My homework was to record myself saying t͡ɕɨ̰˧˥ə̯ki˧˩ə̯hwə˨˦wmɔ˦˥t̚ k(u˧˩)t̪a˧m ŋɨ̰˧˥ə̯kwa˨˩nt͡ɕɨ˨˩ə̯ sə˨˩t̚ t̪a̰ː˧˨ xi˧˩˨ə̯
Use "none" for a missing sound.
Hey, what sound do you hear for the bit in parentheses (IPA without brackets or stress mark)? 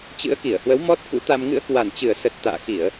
ṵ˧˥